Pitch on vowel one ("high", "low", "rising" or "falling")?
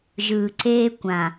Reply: low